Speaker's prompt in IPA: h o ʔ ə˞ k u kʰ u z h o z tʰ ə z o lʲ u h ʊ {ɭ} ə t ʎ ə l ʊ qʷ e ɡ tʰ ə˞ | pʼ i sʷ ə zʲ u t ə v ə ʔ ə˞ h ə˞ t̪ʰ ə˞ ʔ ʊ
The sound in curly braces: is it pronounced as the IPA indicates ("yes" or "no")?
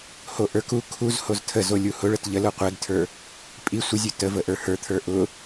yes